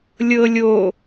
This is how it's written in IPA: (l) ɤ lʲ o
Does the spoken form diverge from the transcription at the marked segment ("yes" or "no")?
yes